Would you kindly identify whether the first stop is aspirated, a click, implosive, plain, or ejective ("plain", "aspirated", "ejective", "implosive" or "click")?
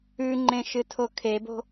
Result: click